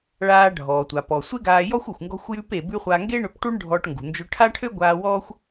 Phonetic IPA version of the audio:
ɭ aː˧ ɖʱ ɔː˩ tʷ a˩ p ɔ˩ sʷ e˥ ɡ aː˧ j ɔ˥ xʷ u˩ xʷ ŋ ɡ ɔ̤˧ xʷ j ʉ˧ p e˩ b ʉ˧ χʷ a˧ ŋ ɡ e˥ ɳ ø˧ p ʈ u˥ ɳ ɖʱ ɔ˧ ʈ ŋ ɡ ṳ˩ n d͡ʒ ø˧ ʈʰ a˥ ʈʰ ø˥ ɡʷ aː˧ w ɔː˥ xʷ

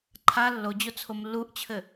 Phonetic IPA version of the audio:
ǃʰ a lː o d͡ʑ o t͡sʰ o m lː u ʔ t͡ɕʰ ɘ

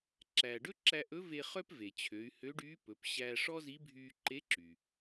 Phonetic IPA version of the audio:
ǁ æ˩ ɖ ɵ˥ ǁ æ˧ ʔ ɵ˧˥ v e˧ χ œ˥ p v e˩ t͡ɕʰ ø˩˧ y̯ h ø˧˥ ɖ yː˧˥ p ɵ˩˧ p ɕ æː˧ ʂ ɔ˥ z i˧˥ bʱ yː˧ ǃ e˧˥ ǁ y˩

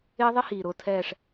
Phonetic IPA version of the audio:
ɪː˦˥ ðˤ ɪ˦˥ h iː˨˩ ɾ ʊː˨˩ tʰ ɛː˨˩ ʂ

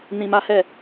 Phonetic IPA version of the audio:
n ĩ˧ m a˦ h ɛ˦˨

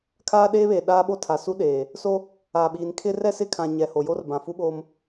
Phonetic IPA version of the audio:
kʰ aː˦ ɗ eː˦ β e˨ ɗ aː˦ ɓ o˦ tʰ a˨ s u˦ ɗ eː˨ | s o˦ | aː˨ ɓ iː˨ n kʰ ɪ˦ r ɛ˦ s ɪ˦˨ kʰ ã˨ ɲ ɛ˨ h o˨ j o˦ r b ã˨ f u˦ ɓ oː˦ m

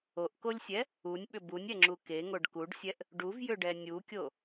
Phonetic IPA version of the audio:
o ʔ k o lʲ sʲ ɛ | u nʲ ɓ ʏ b u nʲ ɛ ŋ͡ǁ u k e ŋ o ɖ k u ɖ sʲ ɛ ʔ | ɖ u v j ʏ ɖ ɛ nʲ u kʲ o

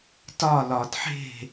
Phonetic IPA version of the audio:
t ɒ˦˨ l ɒ˨ d ħ e̤˦˨

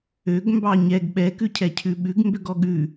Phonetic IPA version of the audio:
ø ɡ m b ɑ ɲ ɛ ɡ ɓ ɛ k ʉ cʰ ɛ cʰ ʉ ɓ ʉ ɡ m b ø ɡ ɔ ɠ ʉ

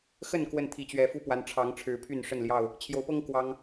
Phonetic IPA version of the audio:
x ə˥˨ n k w ə˥˨ n t̪ʰ i˨˦ t͡ɕ ɥ ɛ˨˦ f u˦ p w a˨˦ n ʈ͡ʂʰ ɑ˨˦ ŋ ʈ͡ʂʰ ɻ̩˨˦ pʰ y˥˨ n ʂ ə˥˨ n l j ɑ˥˨ ʊ̯ | t͡ɕʰ j o˨˦ ʊ̯ p ɤ˦ ŋ k w ɑ˦ ŋ

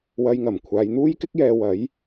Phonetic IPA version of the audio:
w ɐ˧ j ŋ ɐ˨˩ m kʷʰ aː˨˧ j n̪ uː˥ j k ɪ˥ k̚ j ɛː˧ w ɐ˨˥ j

